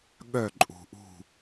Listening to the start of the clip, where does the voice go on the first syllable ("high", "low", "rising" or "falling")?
falling